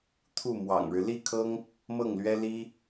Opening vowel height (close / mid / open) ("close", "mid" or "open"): close